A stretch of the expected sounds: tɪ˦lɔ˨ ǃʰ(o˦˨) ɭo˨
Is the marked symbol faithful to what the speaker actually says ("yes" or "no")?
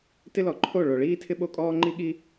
yes